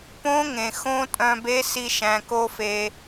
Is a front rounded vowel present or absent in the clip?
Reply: present